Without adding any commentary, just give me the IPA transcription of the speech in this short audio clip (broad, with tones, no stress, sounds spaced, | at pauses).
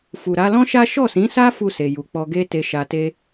f u˨ ɾ a˧ l ɔ̃˦ ʃ a˦ ʃ ɔ˦˨ s ĩ˨˦ s a˦ f u˦˨ s e˨ j u˨ k͡p ɔ˧ ɡ e˦ t e˧ ʃ a˧ t e˦